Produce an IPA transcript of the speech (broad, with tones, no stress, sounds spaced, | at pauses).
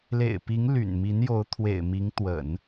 l ḛ˨˩ ɪ̯ p i˧˥ ŋ l y̰˨˩ n m i˧˥ n j o˧˥ ʊ̯ t̪ʰ w ḛ˨˩ ɪ̯ m i˧˥ ŋ t̪ w ə̰˨˩˦ n